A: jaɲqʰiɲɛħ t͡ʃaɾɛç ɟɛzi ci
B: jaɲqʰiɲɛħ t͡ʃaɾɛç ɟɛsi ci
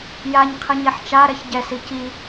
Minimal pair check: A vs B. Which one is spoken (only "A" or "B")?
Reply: B